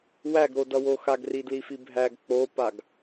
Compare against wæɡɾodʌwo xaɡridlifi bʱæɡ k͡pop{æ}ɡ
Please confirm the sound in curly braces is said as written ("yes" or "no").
no